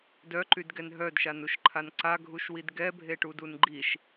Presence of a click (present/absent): present